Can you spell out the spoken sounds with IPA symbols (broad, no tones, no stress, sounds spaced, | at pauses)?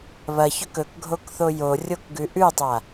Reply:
β ɐ ç ɵ k ɵ k ɡʱ o k θ o j o rʲ o k ɡ ʉ ʔ ʉ tˤ a